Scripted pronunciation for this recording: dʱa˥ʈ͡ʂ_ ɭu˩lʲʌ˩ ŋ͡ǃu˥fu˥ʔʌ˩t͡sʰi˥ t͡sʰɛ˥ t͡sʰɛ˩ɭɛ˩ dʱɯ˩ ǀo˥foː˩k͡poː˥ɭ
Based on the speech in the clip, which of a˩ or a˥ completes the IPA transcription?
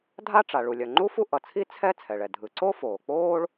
a˩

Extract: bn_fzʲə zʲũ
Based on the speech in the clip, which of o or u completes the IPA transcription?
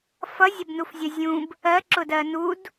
u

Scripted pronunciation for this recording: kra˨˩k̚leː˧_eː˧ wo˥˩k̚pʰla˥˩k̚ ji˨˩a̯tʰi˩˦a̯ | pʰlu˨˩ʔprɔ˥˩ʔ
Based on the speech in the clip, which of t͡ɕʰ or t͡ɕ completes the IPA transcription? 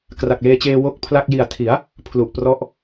t͡ɕ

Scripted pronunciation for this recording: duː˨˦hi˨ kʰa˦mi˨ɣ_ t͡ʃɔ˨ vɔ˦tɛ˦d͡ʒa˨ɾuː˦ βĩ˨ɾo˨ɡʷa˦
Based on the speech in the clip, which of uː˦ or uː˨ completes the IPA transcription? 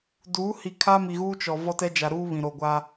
uː˦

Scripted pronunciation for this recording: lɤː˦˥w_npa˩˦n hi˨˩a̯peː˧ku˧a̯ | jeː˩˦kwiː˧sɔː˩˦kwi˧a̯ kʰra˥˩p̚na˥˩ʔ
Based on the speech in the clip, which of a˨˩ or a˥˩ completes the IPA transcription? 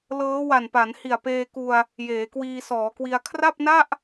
a˨˩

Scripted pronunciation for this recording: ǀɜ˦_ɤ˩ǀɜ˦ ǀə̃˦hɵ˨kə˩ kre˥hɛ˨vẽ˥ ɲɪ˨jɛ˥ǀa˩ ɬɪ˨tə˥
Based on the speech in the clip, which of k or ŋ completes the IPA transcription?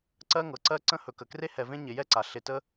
ŋ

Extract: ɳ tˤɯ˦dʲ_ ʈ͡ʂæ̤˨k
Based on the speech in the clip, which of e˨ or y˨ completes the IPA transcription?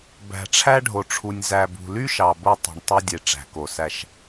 e˨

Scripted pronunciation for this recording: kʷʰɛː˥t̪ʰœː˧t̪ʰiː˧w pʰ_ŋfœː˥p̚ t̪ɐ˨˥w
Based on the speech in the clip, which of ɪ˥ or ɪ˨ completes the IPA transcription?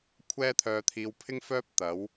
ɪ˥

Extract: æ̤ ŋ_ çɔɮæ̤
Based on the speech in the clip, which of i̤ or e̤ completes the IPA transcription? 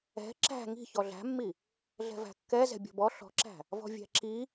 i̤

